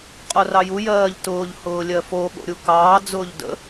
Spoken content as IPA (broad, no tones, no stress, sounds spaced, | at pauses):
qʼ o r ɑ j u j ɜː ʎ t ʊː ʎ h ʊː lʲ ɜ f o ɠ o̰ ɾʲ u k ɑː d͡z ʊː ʎ d ə̰